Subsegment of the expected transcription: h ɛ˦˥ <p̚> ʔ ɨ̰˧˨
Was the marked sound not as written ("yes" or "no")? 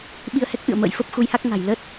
yes